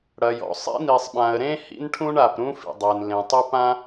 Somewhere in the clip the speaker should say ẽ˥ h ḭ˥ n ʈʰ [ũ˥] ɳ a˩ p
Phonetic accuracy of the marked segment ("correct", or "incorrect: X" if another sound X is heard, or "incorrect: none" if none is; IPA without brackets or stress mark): correct